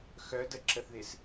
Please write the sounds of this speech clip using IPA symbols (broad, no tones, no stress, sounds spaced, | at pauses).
x œ d ə ǁ ə θ ð ɪ s